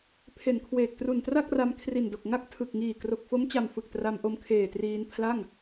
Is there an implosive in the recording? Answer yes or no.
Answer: no